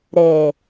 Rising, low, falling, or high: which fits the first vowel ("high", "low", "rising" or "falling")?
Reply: low